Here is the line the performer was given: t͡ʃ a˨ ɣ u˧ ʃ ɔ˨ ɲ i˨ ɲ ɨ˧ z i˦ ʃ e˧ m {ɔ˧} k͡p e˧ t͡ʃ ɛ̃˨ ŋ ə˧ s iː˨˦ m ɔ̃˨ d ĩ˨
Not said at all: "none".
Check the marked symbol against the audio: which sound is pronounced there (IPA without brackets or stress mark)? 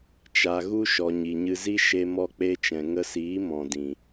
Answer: ɔ˧